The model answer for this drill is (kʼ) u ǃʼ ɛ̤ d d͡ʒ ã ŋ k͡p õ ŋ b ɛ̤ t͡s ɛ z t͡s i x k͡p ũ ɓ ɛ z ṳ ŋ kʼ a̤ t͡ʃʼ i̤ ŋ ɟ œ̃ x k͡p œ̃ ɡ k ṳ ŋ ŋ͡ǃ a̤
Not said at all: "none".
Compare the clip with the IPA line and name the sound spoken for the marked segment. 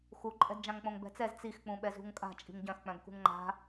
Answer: x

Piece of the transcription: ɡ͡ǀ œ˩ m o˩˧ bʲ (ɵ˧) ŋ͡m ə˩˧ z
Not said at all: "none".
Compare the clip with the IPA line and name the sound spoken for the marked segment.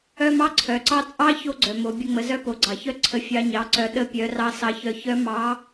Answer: ə˧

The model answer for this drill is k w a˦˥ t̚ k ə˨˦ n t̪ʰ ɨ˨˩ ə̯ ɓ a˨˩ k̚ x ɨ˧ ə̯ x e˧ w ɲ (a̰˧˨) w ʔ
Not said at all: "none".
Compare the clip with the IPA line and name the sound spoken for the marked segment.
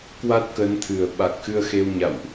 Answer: a̰˧˨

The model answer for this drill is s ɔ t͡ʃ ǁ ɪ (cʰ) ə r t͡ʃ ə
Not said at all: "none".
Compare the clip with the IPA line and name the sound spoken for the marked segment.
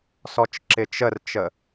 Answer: t͡ʃ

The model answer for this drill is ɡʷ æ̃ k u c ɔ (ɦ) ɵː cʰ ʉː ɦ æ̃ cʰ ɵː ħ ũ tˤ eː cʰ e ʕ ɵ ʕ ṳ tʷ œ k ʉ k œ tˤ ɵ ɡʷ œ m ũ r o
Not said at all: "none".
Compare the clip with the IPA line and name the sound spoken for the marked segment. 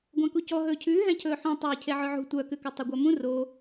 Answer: ɦ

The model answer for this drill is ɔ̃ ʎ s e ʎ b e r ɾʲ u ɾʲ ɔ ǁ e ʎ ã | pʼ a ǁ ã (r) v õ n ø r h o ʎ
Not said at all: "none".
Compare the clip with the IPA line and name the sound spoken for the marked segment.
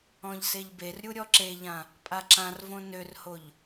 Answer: r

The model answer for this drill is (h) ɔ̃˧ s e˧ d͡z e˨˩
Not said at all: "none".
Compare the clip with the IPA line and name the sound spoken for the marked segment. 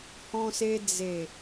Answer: h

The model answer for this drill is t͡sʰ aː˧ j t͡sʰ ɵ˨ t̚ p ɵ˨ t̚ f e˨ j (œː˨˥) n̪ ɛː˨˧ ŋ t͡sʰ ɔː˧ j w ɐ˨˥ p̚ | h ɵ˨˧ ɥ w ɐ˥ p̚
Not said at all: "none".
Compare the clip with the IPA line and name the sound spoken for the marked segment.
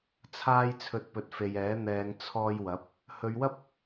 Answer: ɛː˨˥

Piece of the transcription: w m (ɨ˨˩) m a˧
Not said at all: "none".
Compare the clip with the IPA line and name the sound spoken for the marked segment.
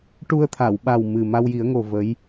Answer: ɨ˨˩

